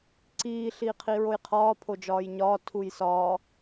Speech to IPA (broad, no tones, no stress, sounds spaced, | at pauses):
ǀ iː ɬ iː qʰ i ɹ o j qʰ ɒː pʰ o d͡ʒ ɒː j ɲ ɒː tʰ u j s ɒ